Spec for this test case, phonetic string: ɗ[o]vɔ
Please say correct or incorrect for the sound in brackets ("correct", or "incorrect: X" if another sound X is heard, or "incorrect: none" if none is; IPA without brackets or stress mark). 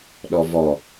incorrect: ɔ